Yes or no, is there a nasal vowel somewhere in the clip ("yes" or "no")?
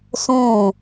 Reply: yes